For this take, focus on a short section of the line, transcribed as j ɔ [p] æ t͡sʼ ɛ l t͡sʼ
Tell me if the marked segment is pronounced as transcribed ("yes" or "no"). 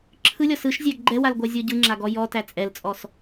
no